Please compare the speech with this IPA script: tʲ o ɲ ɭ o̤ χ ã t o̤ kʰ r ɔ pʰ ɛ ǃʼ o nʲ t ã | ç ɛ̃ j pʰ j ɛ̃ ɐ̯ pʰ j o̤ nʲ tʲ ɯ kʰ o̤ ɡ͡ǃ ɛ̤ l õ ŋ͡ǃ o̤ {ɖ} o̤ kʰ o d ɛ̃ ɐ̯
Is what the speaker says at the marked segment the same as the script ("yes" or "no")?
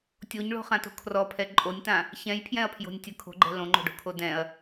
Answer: yes